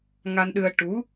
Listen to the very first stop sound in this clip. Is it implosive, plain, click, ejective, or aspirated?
implosive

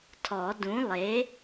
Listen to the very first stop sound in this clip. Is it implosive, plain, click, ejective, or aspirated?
aspirated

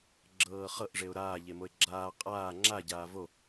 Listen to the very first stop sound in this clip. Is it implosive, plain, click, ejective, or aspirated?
click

